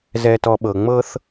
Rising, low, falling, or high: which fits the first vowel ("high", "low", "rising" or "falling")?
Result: low